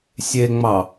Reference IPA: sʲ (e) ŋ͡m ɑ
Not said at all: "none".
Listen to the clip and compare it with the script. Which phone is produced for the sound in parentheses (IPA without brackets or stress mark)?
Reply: e